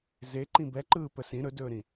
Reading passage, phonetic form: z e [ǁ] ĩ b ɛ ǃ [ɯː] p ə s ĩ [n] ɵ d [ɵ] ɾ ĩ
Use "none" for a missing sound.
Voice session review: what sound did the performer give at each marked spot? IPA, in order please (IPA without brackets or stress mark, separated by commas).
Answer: ǃ, ɯː, ɾ, ɵː